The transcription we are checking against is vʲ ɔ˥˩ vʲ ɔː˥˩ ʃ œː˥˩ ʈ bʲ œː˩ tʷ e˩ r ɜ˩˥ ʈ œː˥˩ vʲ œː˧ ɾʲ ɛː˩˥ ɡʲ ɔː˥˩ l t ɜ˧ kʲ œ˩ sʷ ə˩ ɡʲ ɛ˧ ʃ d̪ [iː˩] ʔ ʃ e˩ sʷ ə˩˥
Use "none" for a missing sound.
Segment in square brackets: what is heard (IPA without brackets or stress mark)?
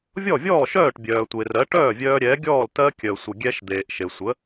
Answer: eː˩